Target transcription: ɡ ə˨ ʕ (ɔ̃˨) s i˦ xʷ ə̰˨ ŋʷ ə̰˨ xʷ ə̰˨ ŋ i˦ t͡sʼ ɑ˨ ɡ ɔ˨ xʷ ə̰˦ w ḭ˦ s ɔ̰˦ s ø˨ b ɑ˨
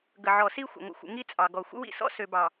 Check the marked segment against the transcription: incorrect: ɔ˨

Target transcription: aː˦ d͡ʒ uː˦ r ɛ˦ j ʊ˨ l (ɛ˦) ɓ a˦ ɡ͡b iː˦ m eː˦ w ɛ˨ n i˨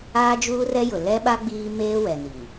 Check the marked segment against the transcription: correct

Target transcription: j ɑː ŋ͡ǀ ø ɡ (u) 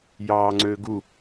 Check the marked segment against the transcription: correct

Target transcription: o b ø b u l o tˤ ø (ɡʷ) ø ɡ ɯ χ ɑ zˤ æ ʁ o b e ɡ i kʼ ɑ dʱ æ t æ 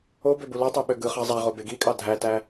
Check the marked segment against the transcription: incorrect: ɓ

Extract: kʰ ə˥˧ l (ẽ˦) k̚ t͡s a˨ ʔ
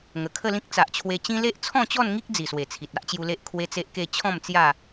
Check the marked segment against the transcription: incorrect: ĩ˦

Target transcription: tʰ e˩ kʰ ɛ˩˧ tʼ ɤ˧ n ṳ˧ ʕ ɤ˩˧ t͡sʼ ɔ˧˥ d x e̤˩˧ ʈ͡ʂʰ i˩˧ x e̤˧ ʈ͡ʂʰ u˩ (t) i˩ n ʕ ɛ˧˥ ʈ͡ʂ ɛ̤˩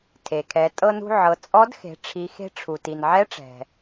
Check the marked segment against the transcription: correct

